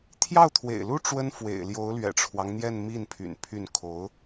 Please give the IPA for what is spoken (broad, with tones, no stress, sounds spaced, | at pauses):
t̪ʰ j ɑ˥˩ ʊ̯ t̪ʰ w ḛ˨˩ ɪ̯ l u˥ ʈ͡ʂ w ə˥ n f w ḛ˨˩ ɪ̯ l j o˧˥ ʊ̯ l ɥ ɛ̰˨˩ ʈ͡ʂʰ w ɑ˦ ŋ n̪ j ɛ˥˧ n m i˥˩ n pʰ y̰˨˩ n pʰ y˥˩ n kʰ o˧˥ ʊ̯